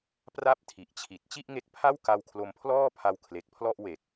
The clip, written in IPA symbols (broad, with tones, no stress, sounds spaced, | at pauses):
p r a˥˩ p̚ tʰ i˨˩ ʔ t͡ɕʰ i˨˩ t̚ t͡ɕ i˥˩ ʔ ŋ e˦˥ k̚ pʰ a˥˩ w k a˧ w kʰ l o˧ m pʰ l ɔː˥˩ pʰ a˧ w kʰ l e˨˩ k̚ pʰ l ɔ˥˩ ʔ w e˨˩ k̚